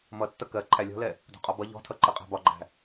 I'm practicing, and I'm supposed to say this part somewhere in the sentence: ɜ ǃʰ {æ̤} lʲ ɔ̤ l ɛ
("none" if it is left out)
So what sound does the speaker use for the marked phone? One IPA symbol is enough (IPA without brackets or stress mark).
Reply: æ